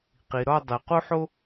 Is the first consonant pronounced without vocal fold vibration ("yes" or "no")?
yes